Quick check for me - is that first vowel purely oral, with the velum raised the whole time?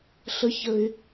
yes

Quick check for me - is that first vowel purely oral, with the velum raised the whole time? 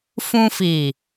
no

